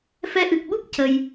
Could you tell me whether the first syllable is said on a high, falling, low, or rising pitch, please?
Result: rising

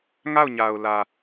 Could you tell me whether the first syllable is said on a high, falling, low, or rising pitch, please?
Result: falling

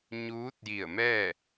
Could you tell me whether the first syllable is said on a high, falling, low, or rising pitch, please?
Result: rising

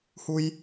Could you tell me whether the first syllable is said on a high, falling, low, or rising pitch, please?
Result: high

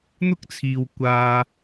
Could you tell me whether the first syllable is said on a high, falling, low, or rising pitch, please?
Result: high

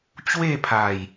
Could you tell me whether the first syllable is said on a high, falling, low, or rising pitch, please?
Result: falling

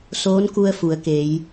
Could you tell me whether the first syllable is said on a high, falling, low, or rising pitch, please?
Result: rising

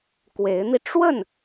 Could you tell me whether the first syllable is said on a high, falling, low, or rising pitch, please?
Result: rising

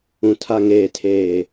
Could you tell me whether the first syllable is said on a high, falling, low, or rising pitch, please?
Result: low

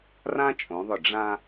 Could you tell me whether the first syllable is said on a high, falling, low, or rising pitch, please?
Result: high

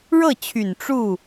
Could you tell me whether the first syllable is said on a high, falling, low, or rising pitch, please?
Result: falling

